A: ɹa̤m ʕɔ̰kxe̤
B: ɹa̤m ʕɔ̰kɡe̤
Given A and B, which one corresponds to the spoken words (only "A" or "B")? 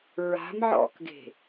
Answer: B